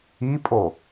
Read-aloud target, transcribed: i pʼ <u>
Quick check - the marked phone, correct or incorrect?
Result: incorrect